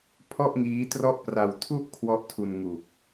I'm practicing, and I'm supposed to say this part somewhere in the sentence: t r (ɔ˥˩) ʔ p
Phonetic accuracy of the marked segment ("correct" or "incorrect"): correct